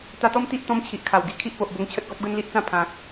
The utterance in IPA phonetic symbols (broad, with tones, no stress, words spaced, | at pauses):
t̪a˧t̪ɔ˦m t̪i˦ʔ t̪ɔ̃˦mt͡ɕʰi˨ʔkʰa˨˩wɡi˧ kʰi˦ʔpo˨ʔbo˧ŋt͡ɕʰə˦t̚ ɡɔ˦p̚ɡə˦nli˦ʔt͡sã˥˧ pʰã˨k̚